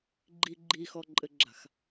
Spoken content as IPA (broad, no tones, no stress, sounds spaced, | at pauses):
ɡ͡ǃ i ɡ͡ǃ i x ɔ ǃʼ ɘ ɡ͡ǁ a̤ x